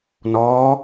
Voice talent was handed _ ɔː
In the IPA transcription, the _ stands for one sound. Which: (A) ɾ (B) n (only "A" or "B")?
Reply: B